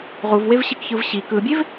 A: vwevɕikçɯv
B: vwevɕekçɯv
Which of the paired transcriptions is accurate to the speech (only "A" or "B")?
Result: A